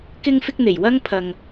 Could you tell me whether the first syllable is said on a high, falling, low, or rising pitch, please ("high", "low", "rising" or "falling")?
high